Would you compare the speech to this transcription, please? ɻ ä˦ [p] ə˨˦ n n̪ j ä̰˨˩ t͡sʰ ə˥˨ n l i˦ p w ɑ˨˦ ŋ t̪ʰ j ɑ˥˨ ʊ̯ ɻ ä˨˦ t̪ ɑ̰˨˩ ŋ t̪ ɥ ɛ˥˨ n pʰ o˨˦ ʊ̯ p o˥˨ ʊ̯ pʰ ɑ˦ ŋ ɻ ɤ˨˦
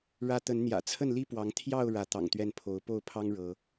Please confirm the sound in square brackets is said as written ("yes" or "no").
no